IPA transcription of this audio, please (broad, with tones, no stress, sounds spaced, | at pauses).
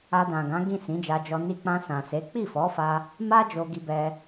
a˧ d ã˨ ɡ ã˨˦ ɡ ĩ˦˨ s ĩ˨˦ d͡ʒ a˧ d͡ʒ ɔ˧ n i˧ k͡p ã˧ s ã˨ s e˨˦ k͡p i˦˨ f ɔ˨˦ f a˧ | m a˦ d͡ʒ o˧ ɡ i˧ b ɛ˧